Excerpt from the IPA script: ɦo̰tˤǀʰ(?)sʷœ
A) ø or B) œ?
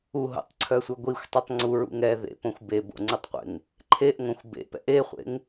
B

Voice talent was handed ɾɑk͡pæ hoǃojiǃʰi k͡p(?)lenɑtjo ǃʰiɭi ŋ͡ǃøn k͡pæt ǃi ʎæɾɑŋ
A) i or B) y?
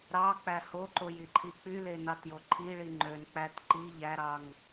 B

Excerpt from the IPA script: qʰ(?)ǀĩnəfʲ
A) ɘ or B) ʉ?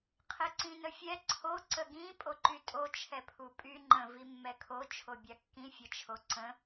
A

